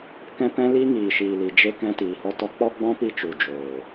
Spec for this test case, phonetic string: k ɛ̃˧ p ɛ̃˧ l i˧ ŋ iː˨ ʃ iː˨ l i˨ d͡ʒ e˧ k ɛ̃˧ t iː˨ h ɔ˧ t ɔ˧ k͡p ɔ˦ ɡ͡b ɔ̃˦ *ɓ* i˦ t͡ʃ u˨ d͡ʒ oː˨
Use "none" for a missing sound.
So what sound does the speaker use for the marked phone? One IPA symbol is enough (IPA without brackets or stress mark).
p